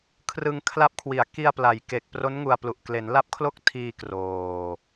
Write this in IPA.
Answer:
kʰ r ɯ˧ ŋ kʰ l a˦˥ p̚ kʰ w i˨˩ a̯ k i˧ a̯ p l a˩˦ j k e˨˩ k̚ p r o˦˥ n ŋ u˧ a̯ p l u˨˩ ʔ k l e˩˦ n l a˦˥ p̚ kʰ l o˥˩ k̚ tʰ iː˧ k r oː˨˩

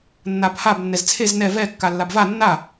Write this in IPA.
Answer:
nː a b h a b nː ɛ z t͡sʰ e z n ɛ v ɛ kː a lː a b v a nː a

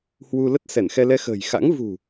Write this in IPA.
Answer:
h w u˧ l ə˦˥ t̚ s ɛ˧˩ n x ɛ˧ l ɛ˧ x ə̤ː˨˩ j x a̰˧˥ ŋ v ṳ˨˩

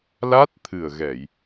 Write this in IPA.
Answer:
l a˦˥ t̚ t̪ʰ ɨ˨˩ ə̯ ɣ ɛ˨˩˨ j

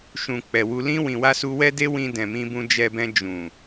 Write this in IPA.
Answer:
ʃ ũ˨ k͡p ɛ˨ w u˧ l ĩ˧ w ĩ˨ w a˧ s u˧ w ɛ˦ d e˦ w ĩ˧ d ɛ̃˨ m ĩ˧ b ũ˧ d͡ʒ ɛ˧ b ɛ̃˧ d͡ʒ ũ˨

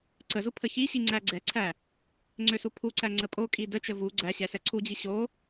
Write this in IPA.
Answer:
ǀ ə z u pʰ ə ç i ɕ i ŋ͡ǀ æ ɡ͡ǀ ɛ ǀʰ æ | ŋ͡ǀ ø s u pʰ u ǀ æ ŋ͡ǀ ə pʼ o kʼ i d ə t͡ʃ ə v u ɡ͡ǀ æ ɕ ɛ s ɛ ǀʰ u d͡ʑ i ɕ o

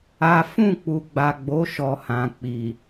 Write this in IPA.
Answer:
a˦ f ũ˦˨ k͡p u˨ ɡ͡b a˨ ɡ͡b o˨˦ ʃ ɔ˧ h ã˨ k͡p i˨

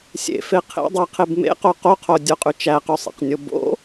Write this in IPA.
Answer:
sʲ ḛ f e qʰ ḛ dˤ æ qʰ e b m ḛ q o q o qʰ o dʲ o qʼ y t͡ʃ æ q y sˤ ḛ q nʲ o b o̰

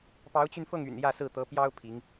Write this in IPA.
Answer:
p ɑ˧˥ ʊ̯ t͡ɕ y˧ n f ɤ˥˩ ŋ y̰˨˩ n j ä˥˧ s ɹ̩˥˩ t̪ ɤ˧˥ p j ɑ˥ ʊ̯ pʰ i˧˥ ŋ

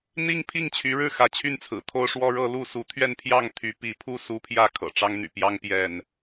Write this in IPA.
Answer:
n̪ i˦ ŋ pʰ i˥˨ ŋ t͡ɕʰ y˨˦ ɻ ɻ̩˥˨ x ä˨˦ t͡ɕʰ y˥˨ n t͡sʰ ɹ̩˨˩ t̪ʰ o˦ ʊ̯ ʂ w ɔ˦ ɻ ɤ˦ l u˥˨ s u˨˦ t̪ʰ ɥ ɛ˥˨ n pʰ j ɑ˥˨ ŋ t̪ʰ y˨˦ p i˨˦ pʰ u˥˨ s u˦ pʰ j ä˥˨ kʰ ɤ̰˨˩ ʈ͡ʂ ɑ˦ ŋ n̪ y̰˨˩ p j ɑ˦ ŋ p j ɛ˥˨ n

